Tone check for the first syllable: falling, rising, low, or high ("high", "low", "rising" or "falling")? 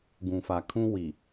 low